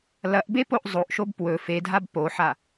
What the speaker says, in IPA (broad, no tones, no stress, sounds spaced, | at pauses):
l ɐ ʔ b e p o ʔ zˤ o ʔ ʃ o b p w ɵ f e dʱ a b p o ħ a